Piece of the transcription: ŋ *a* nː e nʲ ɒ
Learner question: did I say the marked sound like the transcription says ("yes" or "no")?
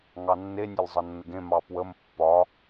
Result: no